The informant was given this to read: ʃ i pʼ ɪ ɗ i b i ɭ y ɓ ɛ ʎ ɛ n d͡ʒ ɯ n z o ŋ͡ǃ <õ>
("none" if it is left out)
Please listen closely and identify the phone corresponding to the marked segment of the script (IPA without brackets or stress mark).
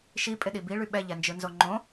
õ